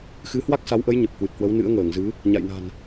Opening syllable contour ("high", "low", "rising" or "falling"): rising